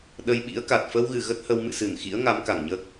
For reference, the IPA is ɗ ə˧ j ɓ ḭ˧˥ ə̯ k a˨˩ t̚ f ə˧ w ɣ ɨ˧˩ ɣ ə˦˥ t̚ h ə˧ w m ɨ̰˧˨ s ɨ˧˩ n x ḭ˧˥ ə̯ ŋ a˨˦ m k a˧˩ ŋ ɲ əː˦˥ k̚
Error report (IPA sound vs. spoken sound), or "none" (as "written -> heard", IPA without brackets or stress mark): none